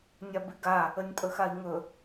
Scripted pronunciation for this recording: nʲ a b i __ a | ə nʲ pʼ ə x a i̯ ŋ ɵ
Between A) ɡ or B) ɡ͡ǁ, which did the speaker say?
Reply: A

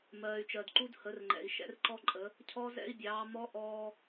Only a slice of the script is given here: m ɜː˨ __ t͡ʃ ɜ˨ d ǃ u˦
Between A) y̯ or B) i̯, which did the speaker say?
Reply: A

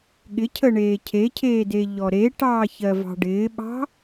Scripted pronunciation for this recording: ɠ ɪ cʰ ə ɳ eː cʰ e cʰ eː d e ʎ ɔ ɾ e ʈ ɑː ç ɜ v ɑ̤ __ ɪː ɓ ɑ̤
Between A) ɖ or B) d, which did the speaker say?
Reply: A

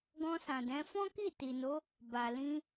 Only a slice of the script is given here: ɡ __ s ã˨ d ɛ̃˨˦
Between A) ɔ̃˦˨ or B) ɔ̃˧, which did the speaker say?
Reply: B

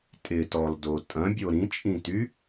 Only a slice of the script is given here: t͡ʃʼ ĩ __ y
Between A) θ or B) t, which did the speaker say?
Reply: B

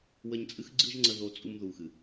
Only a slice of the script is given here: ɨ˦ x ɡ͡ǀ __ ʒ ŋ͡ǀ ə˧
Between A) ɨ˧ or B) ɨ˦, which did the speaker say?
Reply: B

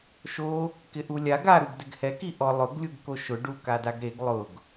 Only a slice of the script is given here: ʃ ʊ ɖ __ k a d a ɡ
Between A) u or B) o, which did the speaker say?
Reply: A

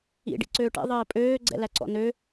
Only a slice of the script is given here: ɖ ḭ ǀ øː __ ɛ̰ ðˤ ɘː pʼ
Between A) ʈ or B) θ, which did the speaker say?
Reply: A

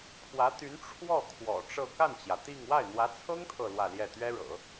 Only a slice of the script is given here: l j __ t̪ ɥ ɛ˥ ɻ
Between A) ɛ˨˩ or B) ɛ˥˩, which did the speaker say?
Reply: B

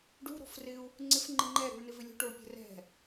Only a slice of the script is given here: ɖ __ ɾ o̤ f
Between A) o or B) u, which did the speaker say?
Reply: B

